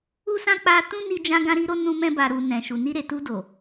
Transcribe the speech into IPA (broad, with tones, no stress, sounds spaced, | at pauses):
u˦ s ã˦ k͡p a˧ t ũ˦ n i˧ d͡ʒ ã˧ ɡ ã˧ ɾ i˧ ɾ o˧ n ũ˧ m ɛ̃˧ b a˨ ɾ u˨ n ɛ̃˨ ʃ u˨ n i˧ ɾ e˨ t u˧ d o˨